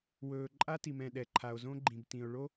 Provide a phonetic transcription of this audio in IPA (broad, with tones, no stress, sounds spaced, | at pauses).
w ɵː˨ ǃʼ a˦ t i˨ m ɛ̃˨ ɗ ɛ˨ ǃʰ a˨ o̯ z õ˦ ɡ͡ǃ ĩ˨ b t ĩ˨ o̯ ɭ o˦